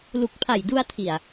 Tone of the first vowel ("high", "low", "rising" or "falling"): low